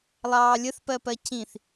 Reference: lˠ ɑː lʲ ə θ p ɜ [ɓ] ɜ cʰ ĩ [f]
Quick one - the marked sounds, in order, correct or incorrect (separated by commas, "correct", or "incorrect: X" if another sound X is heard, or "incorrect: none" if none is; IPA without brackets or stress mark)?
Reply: incorrect: p, incorrect: θ